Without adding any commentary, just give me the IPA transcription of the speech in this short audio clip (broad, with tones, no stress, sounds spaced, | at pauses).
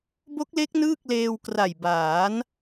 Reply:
b o˦˥ k̚ l e˦˥ k̚ n ɯː˥˩ k̚ l eː˧ w k r a˨˩ j b aː˩˦ n